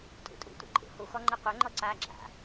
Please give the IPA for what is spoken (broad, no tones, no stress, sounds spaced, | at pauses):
tʼ ṵ tʼ ṵ tʷ ɛ̰ ǃʼ ṵ h u x ɔ ŋ͡ǃ e qʷ ɛ ŋ͡ǃ ɔ ǀ a ɡ͡ǁ a̰